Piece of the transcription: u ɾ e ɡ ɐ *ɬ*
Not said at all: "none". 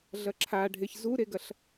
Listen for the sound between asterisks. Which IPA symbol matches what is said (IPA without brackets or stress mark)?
ɬ